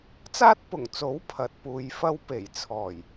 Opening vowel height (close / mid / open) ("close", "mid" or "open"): open